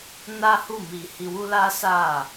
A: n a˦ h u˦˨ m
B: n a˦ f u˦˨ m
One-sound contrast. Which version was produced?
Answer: A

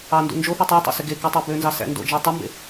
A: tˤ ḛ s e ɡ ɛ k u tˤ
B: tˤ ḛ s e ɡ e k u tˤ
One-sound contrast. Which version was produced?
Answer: B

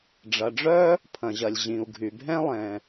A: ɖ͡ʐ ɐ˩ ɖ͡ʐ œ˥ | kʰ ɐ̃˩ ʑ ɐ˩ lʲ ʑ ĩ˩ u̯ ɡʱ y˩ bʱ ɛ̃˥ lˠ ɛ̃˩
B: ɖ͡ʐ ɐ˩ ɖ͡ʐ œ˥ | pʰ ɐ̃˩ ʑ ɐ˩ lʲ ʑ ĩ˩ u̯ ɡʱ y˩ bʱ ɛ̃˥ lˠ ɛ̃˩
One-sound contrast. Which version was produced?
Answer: B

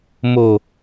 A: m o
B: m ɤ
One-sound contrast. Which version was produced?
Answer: A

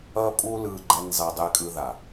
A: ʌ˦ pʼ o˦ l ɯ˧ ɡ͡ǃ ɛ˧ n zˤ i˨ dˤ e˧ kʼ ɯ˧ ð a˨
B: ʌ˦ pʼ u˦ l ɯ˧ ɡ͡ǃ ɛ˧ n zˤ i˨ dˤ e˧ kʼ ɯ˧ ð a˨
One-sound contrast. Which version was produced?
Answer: B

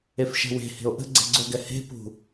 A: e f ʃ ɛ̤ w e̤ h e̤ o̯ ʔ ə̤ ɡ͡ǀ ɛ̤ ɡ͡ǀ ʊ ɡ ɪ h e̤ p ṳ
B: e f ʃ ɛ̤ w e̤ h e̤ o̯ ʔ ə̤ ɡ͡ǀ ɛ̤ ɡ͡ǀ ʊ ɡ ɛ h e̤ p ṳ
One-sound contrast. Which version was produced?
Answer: B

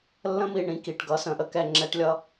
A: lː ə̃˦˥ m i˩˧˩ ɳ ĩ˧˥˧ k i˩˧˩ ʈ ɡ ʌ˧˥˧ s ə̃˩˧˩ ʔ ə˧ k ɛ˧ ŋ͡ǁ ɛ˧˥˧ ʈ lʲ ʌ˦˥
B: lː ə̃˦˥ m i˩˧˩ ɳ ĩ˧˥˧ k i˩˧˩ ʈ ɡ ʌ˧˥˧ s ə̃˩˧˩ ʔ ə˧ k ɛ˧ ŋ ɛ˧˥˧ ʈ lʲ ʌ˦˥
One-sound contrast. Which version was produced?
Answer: A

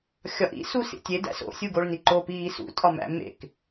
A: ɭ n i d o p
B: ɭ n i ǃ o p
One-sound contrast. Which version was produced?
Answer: B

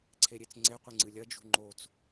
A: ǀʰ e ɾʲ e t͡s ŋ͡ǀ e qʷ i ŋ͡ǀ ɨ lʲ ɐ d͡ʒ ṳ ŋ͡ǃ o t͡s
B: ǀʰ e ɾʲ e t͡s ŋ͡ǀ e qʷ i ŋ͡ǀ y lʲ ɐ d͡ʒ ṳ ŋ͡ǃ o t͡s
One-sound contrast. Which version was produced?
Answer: A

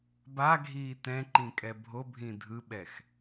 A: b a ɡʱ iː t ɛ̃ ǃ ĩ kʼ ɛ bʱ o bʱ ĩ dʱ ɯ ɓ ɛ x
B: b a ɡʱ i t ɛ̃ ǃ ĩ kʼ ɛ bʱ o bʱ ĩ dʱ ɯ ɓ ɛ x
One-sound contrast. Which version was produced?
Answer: A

